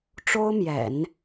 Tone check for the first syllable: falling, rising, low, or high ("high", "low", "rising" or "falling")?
high